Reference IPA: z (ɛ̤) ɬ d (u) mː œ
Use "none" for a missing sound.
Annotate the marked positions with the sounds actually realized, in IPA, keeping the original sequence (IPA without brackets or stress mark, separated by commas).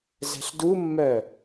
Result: ɛ̤, u